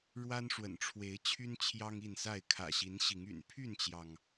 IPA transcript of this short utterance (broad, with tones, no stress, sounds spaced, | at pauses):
ɻ w a˦ n ʂ w ə̰˨˩ n ʈ͡ʂʰ w e˨˦ ɪ̯ t͡ɕʰ y˦ n t͡ɕʰ j ɑ˦ ŋ i˥˨ n s a˥˨ ɪ̯ kʰ ä̰˨˩ ɕ i˨˦ n ɕ i˨˦ ŋ y̰˨˩ n pʰ y˥˨ n t͡ɕ j ɑ˩ ŋ